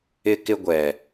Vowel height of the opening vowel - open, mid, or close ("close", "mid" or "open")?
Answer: close